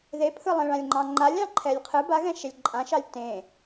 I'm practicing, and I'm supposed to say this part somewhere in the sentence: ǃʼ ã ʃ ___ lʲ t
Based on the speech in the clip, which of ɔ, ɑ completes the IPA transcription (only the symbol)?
ɑ